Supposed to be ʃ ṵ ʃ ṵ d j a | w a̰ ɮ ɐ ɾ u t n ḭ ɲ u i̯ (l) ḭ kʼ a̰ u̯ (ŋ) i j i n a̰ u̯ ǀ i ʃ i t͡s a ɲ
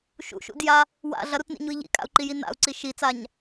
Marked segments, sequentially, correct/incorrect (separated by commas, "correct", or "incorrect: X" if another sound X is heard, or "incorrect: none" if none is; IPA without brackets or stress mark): incorrect: ʎ, incorrect: ǃ